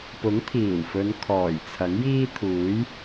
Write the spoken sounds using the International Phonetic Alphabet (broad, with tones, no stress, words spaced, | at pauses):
pʊ˨˥ŋt̪ʰiː˨˩wfɵ˨˧n kʰɔː˨˩jt͡sʰɐ˨˥ŋjiː˥t̪ʰuː˨˥j